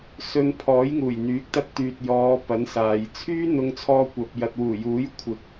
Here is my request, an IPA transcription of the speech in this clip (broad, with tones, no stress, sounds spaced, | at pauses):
s ɵ˧ n pʰ ɔː˨˥ j ŋ uː˨˩ j n̪ yː˨˥ k̚ t̪ ɐ˧ t̚ t̪ yː˨ t̚ j ɔː˨˧ p ɐ˨˥ n s aː˨ j t͡sʰ yː˥ n̪ ʊ˧ ŋ t͡sʰ ɔː˧ kʷ ɐ˨ p̚ j ɐ˨ t̚ w uː˨˩ j uː˨˥ j kʷʰ ɪ˨ k̚